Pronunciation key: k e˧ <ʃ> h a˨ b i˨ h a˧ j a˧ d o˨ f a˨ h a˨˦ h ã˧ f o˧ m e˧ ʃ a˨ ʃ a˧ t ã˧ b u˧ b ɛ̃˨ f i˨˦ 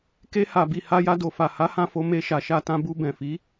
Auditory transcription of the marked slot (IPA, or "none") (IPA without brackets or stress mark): none